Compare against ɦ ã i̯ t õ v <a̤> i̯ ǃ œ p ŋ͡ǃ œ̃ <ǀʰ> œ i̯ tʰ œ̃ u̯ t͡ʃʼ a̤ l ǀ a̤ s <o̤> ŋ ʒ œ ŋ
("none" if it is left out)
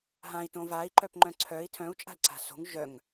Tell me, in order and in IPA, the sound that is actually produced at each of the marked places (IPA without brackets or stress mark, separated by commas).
a, ǀʰ, o̤